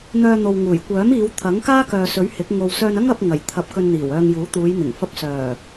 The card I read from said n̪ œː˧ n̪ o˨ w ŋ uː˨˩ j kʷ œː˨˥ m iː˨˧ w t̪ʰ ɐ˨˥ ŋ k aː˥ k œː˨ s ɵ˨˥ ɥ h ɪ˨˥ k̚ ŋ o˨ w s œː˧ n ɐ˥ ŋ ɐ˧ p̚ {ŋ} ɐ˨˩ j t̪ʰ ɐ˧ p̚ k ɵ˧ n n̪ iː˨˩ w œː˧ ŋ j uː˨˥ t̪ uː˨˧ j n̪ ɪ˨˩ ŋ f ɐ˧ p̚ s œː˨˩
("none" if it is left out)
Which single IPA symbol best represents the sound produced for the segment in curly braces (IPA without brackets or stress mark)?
ŋ